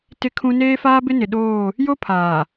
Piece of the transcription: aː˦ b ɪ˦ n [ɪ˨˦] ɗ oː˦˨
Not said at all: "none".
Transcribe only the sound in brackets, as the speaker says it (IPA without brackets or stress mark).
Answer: ɪ˨